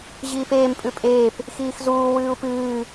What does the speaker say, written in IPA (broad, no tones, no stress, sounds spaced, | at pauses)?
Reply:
ʑ iː p eː m pʼ ʉ pʼ eː p | x iː x z uː w ɨː u̯ p ɨː